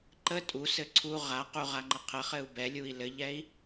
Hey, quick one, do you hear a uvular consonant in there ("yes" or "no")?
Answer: yes